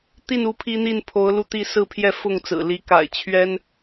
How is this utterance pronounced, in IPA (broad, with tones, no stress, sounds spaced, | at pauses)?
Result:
t̪ i˥˨ n u˥˨ pʰ i˦ n̪ i˥˨ n pʰ o˨˦ ʊ̯ l u˧ t̪ i˥˨ s ɹ̩˥˨ pʰ j ɛ˥˨ f ʊ˥˨ ŋ t͡s ɹ̩˨˩ l i˨˦ k a̰˨˩ ɪ̯ t͡ɕʰ ɥ ɛ˦ n